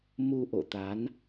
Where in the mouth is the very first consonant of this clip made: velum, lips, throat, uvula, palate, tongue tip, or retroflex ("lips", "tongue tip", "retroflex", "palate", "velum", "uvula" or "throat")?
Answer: lips